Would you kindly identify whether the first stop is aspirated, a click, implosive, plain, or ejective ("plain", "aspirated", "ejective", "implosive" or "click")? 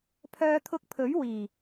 aspirated